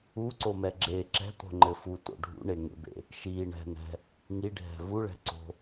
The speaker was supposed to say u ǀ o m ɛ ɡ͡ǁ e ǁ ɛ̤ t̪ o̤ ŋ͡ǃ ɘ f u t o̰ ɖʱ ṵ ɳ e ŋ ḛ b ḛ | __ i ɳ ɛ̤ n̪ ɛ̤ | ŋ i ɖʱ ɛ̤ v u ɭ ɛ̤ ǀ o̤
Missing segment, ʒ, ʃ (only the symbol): ʃ